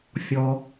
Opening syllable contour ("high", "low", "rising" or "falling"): high